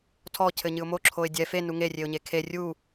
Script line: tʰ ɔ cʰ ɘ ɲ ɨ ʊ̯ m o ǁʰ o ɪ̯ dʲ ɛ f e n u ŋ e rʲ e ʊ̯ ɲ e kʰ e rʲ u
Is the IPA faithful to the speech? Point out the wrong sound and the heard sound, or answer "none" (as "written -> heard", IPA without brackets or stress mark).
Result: none